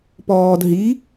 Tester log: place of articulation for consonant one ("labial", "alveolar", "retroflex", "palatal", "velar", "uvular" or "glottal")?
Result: labial